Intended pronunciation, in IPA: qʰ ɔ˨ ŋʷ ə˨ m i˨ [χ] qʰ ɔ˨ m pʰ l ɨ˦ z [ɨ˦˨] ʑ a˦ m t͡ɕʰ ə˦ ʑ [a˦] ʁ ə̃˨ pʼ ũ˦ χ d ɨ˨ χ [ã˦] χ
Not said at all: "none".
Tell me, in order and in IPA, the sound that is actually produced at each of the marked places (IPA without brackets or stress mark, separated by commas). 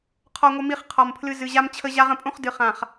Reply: χ, ɨ˨, a˦, ã˨